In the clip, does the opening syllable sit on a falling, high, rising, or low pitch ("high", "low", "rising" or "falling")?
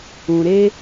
low